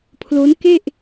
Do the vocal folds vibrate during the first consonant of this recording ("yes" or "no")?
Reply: no